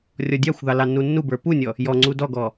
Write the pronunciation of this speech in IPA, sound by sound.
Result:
rʲɔdʲɑxʷðɑ lɑnːunːubə˞ punʲɔ | jɔŋ͡ǀu dɔɡɔ

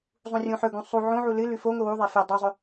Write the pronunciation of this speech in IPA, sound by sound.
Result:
zˤũrʲũħɵɡũ sˤu ʕõʕu lɨ lʉfoŋʷɨ wuðˤe fe dˤuzˤɵ

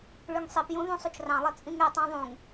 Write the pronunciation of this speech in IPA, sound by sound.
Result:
ɭyŋsˤipjũ ðũsˤut͡ʃrɑ̃lˠe t͡sʼĩŋetˤɑ̃ ðˤũŋ

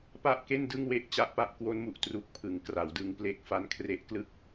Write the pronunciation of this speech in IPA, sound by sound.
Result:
pa˥˩ʔke˥˩n dɯ˥˩ŋwe˥˩ʔt͡ɕa˦˥ʔpa˦˥ʔ kwo˦˥nmu˨˩ʔ tru˨˩k̚pʰɯ˩˦ŋ kra˩˦wdɯ˧ŋ ple˦˥k̚fa˦˥nkʰre˦˥ʔklɯ˥˩k̚

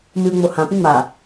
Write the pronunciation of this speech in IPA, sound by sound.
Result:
mɨu̯ŋ͡mo hã pĩŋ͡ma

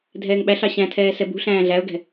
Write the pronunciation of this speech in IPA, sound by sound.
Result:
dʱɛːŋɓæɬɑ ɕæ̃tʰɛː sɛbṳ ɬæ̃ːɮæʊ̯ɡɛ̤

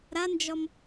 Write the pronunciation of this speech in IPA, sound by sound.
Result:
ɾand͡ʒɔm

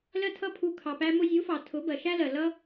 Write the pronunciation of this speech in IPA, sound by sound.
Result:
lɜ˦tʰʌ˦pʰu˧ kʰɑ˨pæ˧ mʊ˧zʲu˨˦fɑ˨ tʰʊ˨˦bɜ˨ʃæ˦lɜ˨ lʌ˦

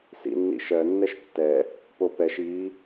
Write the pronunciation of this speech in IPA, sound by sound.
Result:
sḭnːḭʃɜ nːɛʃtːɛ | popɛʃ i

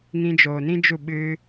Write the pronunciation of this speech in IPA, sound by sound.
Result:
ŋĩ˧d͡ʒoː˨nĩ˦d͡ʒu˦˨ ɓɨ˦

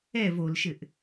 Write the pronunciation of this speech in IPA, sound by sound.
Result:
ɛv olʃɘʔ

